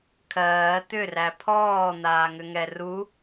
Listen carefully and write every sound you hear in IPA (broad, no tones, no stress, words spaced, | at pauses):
kʰɜː t̪ʏræ pʰɔːn̪aːŋʏŋɛ ru